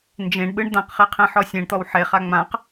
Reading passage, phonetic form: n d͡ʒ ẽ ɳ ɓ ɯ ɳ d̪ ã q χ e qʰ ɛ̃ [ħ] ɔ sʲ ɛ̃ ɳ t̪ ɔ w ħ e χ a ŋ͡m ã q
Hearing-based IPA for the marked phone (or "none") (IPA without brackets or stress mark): ħ